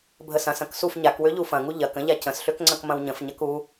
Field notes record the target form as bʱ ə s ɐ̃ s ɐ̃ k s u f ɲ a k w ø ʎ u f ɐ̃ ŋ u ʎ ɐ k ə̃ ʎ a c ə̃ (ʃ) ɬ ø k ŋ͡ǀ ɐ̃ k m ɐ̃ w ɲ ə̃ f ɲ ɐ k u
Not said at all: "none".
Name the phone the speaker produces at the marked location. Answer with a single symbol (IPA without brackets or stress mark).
s